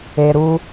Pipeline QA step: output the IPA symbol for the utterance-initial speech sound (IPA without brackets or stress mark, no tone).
e